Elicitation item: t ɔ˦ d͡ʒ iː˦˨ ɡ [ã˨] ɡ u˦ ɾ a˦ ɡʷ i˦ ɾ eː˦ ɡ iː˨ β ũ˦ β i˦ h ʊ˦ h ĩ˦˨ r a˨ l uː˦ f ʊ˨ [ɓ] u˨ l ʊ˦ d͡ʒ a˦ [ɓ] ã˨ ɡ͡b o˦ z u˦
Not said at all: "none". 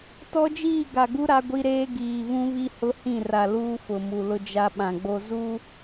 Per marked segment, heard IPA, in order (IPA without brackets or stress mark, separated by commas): a˨, m, ɓ